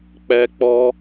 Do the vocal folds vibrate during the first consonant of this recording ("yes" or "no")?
no